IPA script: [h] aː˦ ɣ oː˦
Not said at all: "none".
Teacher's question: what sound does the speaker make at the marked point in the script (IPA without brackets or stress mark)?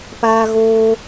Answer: p